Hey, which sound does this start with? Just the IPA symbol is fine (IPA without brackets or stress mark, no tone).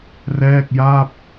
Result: r